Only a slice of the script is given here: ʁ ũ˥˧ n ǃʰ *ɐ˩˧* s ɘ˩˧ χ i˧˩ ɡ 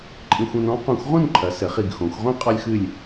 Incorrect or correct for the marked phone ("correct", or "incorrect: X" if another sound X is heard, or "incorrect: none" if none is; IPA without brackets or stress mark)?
correct